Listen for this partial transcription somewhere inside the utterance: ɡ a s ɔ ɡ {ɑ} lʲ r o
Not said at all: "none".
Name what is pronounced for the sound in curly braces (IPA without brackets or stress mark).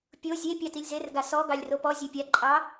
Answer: ɑ